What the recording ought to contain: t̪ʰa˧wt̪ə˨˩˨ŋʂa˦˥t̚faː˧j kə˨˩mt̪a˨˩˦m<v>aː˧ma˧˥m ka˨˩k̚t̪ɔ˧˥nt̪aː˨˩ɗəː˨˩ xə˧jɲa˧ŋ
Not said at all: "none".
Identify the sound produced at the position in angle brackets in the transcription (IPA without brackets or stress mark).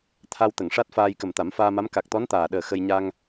f